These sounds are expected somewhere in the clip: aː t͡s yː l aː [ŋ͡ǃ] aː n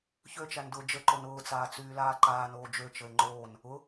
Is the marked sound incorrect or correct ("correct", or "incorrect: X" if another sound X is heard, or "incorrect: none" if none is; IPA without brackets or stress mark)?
incorrect: ǃ